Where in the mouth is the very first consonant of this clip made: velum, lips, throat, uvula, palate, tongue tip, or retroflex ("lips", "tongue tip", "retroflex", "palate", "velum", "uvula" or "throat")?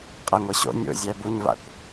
uvula